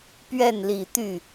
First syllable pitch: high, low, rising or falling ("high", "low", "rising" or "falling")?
falling